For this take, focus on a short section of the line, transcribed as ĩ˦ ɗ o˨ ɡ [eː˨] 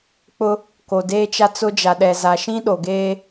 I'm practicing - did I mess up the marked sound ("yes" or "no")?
yes